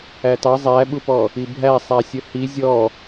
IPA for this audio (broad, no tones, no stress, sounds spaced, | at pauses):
æ t ɑ zˤ æ ɓ u p ɔ | i bʱ æ sˤ æ sʲ ə h i zʲ ɔ